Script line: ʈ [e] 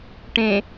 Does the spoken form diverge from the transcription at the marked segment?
yes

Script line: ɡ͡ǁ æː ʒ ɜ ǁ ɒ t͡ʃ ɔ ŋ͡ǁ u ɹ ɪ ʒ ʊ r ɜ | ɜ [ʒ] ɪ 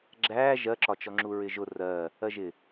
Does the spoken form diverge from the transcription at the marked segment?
no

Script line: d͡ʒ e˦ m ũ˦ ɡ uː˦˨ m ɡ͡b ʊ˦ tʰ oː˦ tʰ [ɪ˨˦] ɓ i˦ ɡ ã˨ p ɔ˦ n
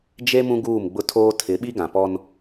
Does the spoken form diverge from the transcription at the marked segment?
no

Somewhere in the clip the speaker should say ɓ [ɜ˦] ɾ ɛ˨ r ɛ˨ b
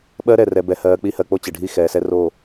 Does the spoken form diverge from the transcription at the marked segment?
no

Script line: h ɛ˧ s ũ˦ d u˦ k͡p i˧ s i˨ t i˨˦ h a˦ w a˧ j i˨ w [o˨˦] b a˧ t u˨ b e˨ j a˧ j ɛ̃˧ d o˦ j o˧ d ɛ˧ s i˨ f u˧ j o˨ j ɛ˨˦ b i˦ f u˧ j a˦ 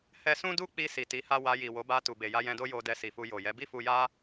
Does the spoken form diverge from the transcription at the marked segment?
no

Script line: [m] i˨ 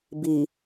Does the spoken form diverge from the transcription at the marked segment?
yes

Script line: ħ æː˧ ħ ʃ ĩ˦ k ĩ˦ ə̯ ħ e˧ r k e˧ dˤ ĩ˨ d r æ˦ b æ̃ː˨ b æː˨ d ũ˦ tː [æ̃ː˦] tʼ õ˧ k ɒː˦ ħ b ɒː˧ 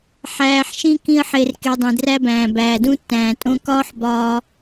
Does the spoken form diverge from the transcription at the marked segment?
yes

